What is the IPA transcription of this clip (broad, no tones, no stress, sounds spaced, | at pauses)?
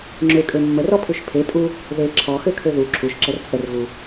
ŋ͡ǁ ø kʼ ø mː ə r ɔ pʰ u ʃ pʰ e tʼ u | ð e ǁʰ ɔ x ø kʰ ø ð u ǁʰ u ʃ ǁ ə r t͡sʼ ə r ɣ u